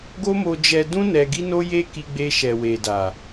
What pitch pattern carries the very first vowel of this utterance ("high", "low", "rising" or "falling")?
high